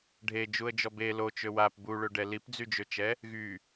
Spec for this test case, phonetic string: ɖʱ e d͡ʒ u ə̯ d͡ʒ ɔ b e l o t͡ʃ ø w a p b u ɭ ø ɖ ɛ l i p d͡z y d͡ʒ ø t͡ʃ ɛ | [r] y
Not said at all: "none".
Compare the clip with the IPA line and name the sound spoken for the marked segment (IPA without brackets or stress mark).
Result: ɣ